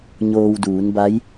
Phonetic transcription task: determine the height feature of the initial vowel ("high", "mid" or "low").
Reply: mid